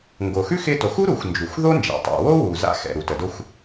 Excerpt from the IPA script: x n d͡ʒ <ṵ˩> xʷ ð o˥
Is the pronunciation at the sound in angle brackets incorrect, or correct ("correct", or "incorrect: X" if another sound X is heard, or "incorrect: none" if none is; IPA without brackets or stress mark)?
incorrect: u˩